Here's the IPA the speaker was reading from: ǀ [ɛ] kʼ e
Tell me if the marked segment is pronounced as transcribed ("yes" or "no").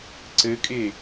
no